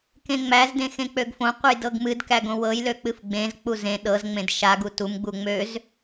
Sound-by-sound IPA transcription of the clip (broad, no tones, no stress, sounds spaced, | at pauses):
k ẽ ŋ͡m æ z d ẽ x ẽ k͡p ø ɡ f õ qʷ ɨ j d ɤ ɡ m ɨ d k æ ɡ õ w ɤ j l ø k͡p ɨ f ɡ͡b ẽ z k͡p u z ẽ ɗ ɤ z ŋ͡m ẽ d ʃ a ɡ u t u m ɡ͡b u ŋ͡m ø z